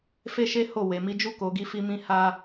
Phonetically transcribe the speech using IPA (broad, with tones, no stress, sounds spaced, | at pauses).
f e˦ ʃ e˦ h o˦˨ w e˨ m i˧ d͡ʒ u˦ k o˧ ɡ i˦ f i˦ m ĩ˦ h a˦